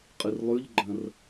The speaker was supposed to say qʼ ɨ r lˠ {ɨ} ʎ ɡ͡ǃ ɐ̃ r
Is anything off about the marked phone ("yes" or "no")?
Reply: yes